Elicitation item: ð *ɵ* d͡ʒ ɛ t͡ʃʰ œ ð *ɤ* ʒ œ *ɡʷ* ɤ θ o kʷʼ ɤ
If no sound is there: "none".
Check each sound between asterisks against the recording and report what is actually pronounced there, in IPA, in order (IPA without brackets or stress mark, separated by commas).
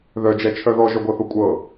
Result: œ, ɔ, ɡʷ